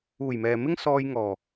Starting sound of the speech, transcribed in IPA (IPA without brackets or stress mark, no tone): uː